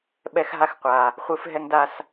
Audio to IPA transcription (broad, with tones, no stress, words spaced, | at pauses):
ɓɛ˦xɦa˦xqʷa˨ | χʷɯ˦fɦɛ˦ŋ da˦s